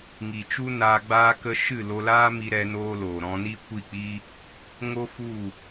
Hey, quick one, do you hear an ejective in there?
no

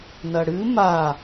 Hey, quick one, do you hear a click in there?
no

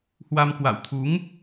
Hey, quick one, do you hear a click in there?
no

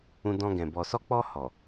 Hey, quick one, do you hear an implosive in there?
no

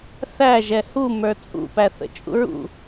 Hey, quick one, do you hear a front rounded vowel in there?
no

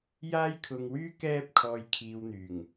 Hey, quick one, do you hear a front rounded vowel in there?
yes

